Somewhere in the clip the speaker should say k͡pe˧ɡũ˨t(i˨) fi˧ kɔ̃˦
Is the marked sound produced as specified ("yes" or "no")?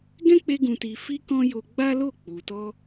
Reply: yes